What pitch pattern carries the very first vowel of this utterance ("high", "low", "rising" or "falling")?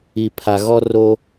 low